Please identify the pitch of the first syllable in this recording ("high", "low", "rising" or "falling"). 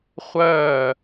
falling